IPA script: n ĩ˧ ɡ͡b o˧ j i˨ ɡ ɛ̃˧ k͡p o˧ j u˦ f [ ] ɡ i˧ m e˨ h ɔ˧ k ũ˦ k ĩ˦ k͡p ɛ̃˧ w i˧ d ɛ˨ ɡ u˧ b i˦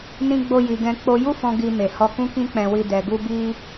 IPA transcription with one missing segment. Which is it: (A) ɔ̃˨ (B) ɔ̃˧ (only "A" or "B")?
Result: B